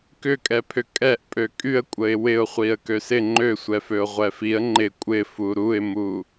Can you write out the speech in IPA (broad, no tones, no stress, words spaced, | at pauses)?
kʏkʼɛpʰʏ kʼɛʔ pʼøkʼyə̯kʷʼəɪ̯ wɪʊ̯χʷiə̯ køsɪ ŋ͡ǃøsʷɛføʊ̯ ʁʷɛfiə̯ ŋ͡ǃɪ kʷʼɪ fuɾuɪ̯mu